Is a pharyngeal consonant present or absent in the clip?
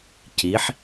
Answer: present